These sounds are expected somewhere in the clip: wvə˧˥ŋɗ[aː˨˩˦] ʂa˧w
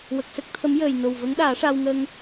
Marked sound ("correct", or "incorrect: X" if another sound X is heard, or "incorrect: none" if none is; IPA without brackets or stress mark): correct